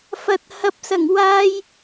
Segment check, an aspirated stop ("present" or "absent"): absent